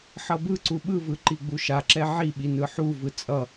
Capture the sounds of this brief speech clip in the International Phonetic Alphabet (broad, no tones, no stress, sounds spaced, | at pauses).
ħ ʌ b ɯ ǀ u ɓ ɯ v ɯ ǃ i ɡ͡b u ʃ a ǁ ɛ ʕ i ɓ i n ɯ ħ u v ɯ t͡sʼ ʌ